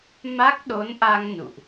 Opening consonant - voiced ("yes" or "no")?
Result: yes